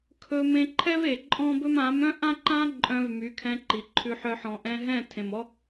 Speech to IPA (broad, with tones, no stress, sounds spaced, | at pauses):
kʰ ɵ˧ m ẽ˧ ǃʰ ɛ˦ v e˨ ǃʼ ɔ̃˦ b ɵ˦ m ã˨˦ m œ̃˦ ʔ ã˦ ǃ ã˦ ǃʼ œ̃˧ v m y˨˦ kʰ ɛ̃˧ ǃ i˨ ǃʰ ʉ˧ ħ œ˧ ħ ɔ̃˨ ʔ ɛ̃˧ ɦ ɛ̃˦˨ tʰ ẽ˨ m ɔ˦